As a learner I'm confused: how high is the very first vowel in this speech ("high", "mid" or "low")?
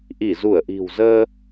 high